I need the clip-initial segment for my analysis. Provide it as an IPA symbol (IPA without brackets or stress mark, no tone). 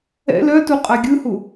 ɛ̰